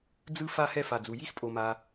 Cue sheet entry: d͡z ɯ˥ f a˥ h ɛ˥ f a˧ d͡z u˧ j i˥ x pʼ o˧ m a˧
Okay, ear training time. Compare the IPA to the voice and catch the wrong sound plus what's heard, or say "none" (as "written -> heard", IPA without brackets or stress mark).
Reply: none